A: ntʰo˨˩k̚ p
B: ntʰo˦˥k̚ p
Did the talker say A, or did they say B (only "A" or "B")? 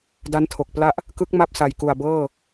A